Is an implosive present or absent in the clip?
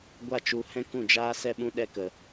present